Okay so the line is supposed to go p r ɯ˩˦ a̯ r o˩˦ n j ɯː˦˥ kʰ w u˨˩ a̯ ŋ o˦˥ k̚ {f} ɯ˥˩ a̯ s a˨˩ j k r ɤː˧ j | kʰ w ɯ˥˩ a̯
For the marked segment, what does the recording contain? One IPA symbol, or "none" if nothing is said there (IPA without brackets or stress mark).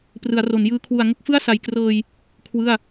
f